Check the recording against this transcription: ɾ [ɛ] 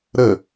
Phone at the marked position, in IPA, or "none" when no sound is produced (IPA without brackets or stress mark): ə